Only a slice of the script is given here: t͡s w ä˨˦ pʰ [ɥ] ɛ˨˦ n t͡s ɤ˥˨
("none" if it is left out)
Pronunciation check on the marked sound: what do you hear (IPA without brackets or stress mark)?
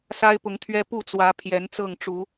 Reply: j